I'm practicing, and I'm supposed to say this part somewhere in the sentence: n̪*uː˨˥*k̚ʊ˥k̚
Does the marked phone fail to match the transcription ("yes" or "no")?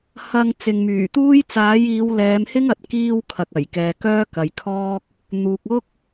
yes